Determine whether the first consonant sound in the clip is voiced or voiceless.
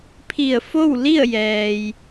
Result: voiceless